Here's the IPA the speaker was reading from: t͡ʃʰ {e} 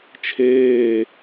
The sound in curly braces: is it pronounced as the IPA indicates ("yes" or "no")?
no